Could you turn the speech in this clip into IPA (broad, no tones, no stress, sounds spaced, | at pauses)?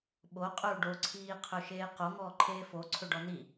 ɓ o qʼ ɵ u̯ ɖ o ǀʰ iː qʰ ɵ ʃ eː q o ŋ ɔː ǃʰ eː f o ǀʰ ɵ ɖ ɔ n i